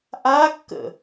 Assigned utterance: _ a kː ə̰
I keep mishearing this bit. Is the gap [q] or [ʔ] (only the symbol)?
ʔ